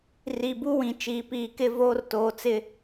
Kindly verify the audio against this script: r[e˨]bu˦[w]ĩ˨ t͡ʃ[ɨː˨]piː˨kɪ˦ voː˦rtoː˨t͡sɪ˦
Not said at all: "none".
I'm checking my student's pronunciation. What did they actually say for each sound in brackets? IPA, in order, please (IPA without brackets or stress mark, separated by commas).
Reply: i˨, w, iː˨